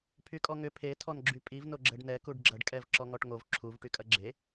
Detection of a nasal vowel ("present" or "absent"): absent